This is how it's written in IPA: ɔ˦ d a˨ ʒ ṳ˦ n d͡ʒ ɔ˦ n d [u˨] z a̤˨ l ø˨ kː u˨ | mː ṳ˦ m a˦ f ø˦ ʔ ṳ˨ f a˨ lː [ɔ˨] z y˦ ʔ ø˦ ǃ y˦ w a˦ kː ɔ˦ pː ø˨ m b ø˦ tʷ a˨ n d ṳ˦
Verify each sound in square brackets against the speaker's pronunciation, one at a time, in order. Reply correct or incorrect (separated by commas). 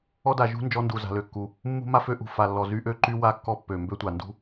correct, correct